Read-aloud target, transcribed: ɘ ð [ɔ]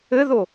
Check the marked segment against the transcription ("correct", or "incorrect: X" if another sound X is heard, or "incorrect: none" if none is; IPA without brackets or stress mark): incorrect: o